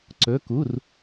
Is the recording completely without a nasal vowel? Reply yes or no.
yes